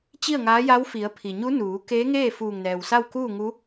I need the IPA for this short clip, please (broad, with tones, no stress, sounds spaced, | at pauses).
t͡ɕ i˥˨ ə̯ ŋ aː˧˥ j a˧˥ w f i˩˧ ə̯ pʰ i˩ ɲ u˧˥ n uː˩˧ k eː˧˥ ŋ eː˥˨ f uː˧˩ ŋ n ɛː˩ w s a˥˨ w k uː˥˨ ŋ u˧˥